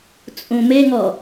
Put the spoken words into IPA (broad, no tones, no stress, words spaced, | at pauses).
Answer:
t͡sʼũmeŋɔ